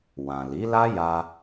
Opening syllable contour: low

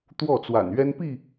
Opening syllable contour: falling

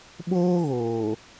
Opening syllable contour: high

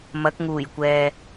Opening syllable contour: rising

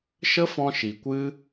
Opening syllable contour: high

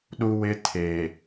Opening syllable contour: high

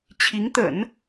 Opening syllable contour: rising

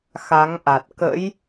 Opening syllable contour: rising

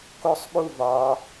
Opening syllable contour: falling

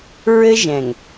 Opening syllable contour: high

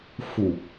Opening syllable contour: low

